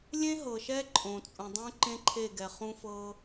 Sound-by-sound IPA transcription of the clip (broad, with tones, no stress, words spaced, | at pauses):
lʲẽ˦ɦɤ˨ʃɛ˦ ǃʼõ˨t͡sʼũ˨dˤũ˦ ǃẽ˦ǃʰe˦˨ɡɛ˨ χũ˦fɤ˦